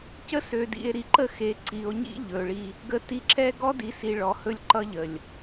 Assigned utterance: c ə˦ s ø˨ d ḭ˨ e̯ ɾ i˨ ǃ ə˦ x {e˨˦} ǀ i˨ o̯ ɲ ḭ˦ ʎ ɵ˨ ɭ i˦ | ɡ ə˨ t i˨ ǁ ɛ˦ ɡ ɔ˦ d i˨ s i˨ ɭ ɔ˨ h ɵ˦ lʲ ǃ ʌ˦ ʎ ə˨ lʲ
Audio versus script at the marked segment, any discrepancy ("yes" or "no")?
no